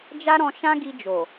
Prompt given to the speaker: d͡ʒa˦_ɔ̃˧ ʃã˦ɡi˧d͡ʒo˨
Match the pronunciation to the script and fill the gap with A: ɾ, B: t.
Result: A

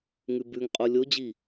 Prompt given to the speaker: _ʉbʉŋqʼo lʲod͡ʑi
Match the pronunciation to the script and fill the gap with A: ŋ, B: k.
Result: A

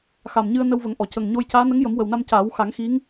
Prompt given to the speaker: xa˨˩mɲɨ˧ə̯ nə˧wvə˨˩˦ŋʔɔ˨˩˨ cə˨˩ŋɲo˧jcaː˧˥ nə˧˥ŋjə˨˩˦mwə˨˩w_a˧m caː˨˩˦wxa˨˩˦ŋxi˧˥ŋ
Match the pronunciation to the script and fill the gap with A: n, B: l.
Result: A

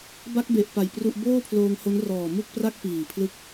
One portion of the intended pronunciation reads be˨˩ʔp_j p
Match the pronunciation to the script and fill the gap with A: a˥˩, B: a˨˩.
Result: B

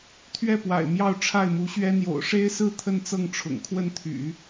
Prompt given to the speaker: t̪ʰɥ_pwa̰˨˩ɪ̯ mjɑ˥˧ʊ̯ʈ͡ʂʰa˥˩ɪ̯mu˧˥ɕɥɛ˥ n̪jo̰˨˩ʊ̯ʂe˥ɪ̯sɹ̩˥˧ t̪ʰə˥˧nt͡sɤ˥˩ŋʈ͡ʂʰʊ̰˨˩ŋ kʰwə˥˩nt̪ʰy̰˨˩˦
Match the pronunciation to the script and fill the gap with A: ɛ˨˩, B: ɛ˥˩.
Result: B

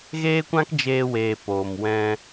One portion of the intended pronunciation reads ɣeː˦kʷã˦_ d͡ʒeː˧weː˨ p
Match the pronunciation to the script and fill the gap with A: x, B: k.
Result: B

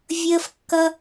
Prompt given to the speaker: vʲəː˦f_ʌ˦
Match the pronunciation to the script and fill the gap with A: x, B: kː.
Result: B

